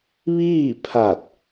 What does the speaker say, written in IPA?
ʋ iː˥˨ pʰ a˧˩ t̚

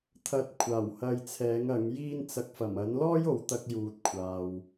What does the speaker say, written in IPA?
t̪ʰ ɐ˧ t̚ kʷʰ aː˨˩ w h ɐ˧ j t͡sʰ ɛː˨˥ ŋ ɐ˨˥ ŋ j iː˥ n t͡s ɐ˧ k̚ f ɐ˨˩ m ɐ˨˥ n l ɔː˥ j o˨ w t̪ ɐ˧ k̚ j uː˨ t̚ kʷʰ aː˨ w

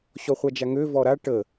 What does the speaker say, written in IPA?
ɕ ɔ χʷ a d͡ʒ a ŋ ø v ɔ ɾ a ʈ ə

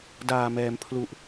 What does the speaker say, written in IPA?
d aː˨˩ m ɛː˩˦ m pʰ l u˨˩ ʔ

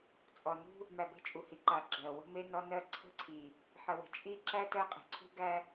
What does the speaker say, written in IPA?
t͡sʼ ɔ˨ n ṳ˦ | m æ˨ b e̤˦ t͡ʃʼ u˨ h i˨ ǃ a˨ ɡ͡ǁ ɜ˨ w ə̤˦ m e˦ n ɔ˦ n ɜ˦ ǀʰ ə̤˦ ǀʰ i˨ | ħ ə˨ w ə̤˨ t͡ʃʼ i˦ ǁ æ˦ t ɜ˦ qʼ e̤˨ ǀʰ ṳ˦ ɡ æ˦

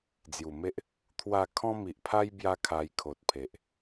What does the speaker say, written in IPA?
d͡z j u˨˩ m e˦ ʔ | t̪ʰ w a˥˧ kʰ ɔ̃˦ m i˨ ʔ pʰ a˦ j b j a˦ kʰ a˧ j kʰ o˨ t̚ pʰ e˨ ʔ

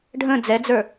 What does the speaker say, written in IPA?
ɖʱ ə̃ d͡z ɛ d͡z ə˞

